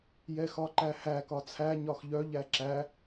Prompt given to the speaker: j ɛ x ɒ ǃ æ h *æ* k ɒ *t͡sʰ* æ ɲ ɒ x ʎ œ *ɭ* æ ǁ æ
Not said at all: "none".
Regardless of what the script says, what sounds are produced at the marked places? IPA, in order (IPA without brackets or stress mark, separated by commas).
æ, t͡sʰ, ʎ